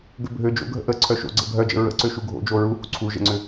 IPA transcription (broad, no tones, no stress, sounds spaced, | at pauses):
ɡ ø bʱ ø d͡ʒ o̰ ɡʱ ə̰ ʔ ə ǀʰ œ ʃ o̰ ɡ͡ǀ ə̰ bʱ œ d͡ʒ ə̰ ɹ ə̰ ǀ ø ʃ u ɡʱ o̰ d͡ʒ o ɹ u h ṵ ǀʰ u ʒ ə̰ ŋ͡ǀ ʏ